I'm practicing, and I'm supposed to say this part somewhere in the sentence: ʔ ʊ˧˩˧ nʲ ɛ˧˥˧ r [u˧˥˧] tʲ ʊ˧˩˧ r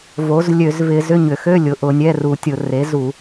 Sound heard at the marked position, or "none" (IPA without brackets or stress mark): u˧˩˧